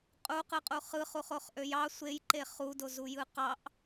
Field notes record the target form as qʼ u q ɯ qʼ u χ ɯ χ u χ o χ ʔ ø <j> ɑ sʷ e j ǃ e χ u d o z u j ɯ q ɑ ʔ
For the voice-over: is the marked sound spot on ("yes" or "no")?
yes